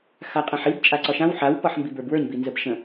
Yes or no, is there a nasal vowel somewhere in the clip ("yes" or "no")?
yes